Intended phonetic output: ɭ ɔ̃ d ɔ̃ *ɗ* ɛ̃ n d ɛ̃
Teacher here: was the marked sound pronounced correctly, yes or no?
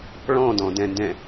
no